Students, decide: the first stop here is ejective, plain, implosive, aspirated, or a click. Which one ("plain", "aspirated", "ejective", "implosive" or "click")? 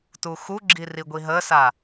plain